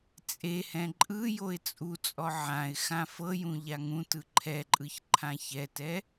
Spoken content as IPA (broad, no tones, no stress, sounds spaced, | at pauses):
t͡sʼ e h ɛ̃ ǃʼ ɯ j o ɪ̯ t͡sʼ u t͡sʼ ɔ ʕ ã ɪ̯ x ã f ɤ j ũ ʎ a ŋ ũ t ɯ ǃʰ ɛ ǃʼ ɯ ç ǃʰ ã ç ɛ t ɛ